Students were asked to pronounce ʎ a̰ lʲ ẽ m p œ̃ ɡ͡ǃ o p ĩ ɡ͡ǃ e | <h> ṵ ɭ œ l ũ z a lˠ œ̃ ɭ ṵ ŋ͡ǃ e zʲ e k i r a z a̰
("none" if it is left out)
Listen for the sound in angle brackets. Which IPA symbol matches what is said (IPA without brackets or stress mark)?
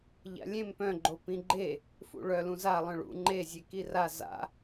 f